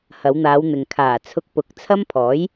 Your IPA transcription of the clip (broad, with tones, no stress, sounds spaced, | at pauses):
h ɐ˨˧ w n̪ aː˨˧ w n̪ ɪ˨ ŋ kʰ aː˨˩ t͡sʰ ʊ˧ k̚ p ʊ˨˥ k̚ t͡sʰ ɐ˥ m pʰ ɔː˨˥ j